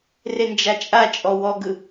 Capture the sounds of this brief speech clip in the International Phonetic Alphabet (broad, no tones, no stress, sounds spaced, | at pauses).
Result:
r e n d͡ʒ a t͡ʃʼ a t͡ʃʼ ɔ w ɔ ɡ ɯ